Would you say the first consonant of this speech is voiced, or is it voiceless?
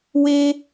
voiced